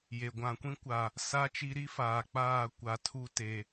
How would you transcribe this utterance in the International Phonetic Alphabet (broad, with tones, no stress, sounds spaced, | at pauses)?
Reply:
j e˨ ɡʷ ã˨ kʷ ĩ˦ kʷ a˨ | s a˦ t͡ʃ i˦ ɾ i˦ f aː˨ k͡p aː˦˨ kʷ a˨ tʰ u˦ t e˨